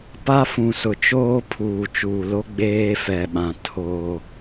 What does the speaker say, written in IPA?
p a˦ f ũ˨ s ʊ˨ t͡ʃ oː˦ pʰ uː˨ t͡ʃ uː˨ l o˦ ɡ͡b eː˦ f ɛ˨ ɓ ã˨ tʰ oː˦

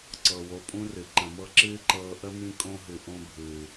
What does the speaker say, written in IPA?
ǀ ɤ˩ w o˨ pʼ ũ˦ r ɨ˩ ǃ ə̃˨ m ɤ˥ ǁ ɨː˥ ǃ ɤː˦ ʔ ə˥ m ĩ˦ kʼ õ˦ ɦ ɨ˨ ʔ õ˦ bʱ ɨː˨

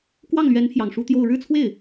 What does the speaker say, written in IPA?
k w ɑ˥˩ ŋ l ɥ ɛ˧˥ n pʰ j ɑ˨˩ ŋ ʂ u˥ t̪ j o˥˧ ʊ̯ ɻ ɻ̩˥˧ t͡sʰ w e˥˩ ɪ̯

